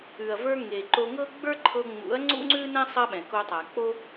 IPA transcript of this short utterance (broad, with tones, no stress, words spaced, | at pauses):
ʉ˨ɐ̯və˞˧ŋe˨ ǃo˧ŋɤ˦ ɡ͡bə˞˦ǃʰɤ˧ŋ͡mṵ˨˦ɐ̯ ŋ͡ǀṵ˦ŋ͡ǀʉ˦nɛ̃˦ sˤɐ˦ɓɛ̃˨ ko˧tˤa˨ k͡po˦